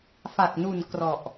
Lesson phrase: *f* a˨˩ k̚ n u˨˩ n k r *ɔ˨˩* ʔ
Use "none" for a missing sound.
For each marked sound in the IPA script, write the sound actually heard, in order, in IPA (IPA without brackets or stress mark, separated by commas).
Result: f, ɔ˨˩